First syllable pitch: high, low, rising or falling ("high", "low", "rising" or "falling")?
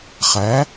rising